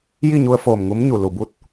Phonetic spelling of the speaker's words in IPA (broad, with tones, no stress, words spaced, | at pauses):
ji˥˨ɲu˧ə̯ foː˧˩mŋu˧˥mɲu˩ lu˩bu˧˥t̚